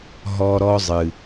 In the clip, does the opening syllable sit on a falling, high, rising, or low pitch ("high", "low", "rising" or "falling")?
high